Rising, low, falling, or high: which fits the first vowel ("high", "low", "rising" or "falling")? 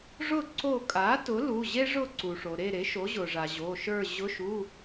falling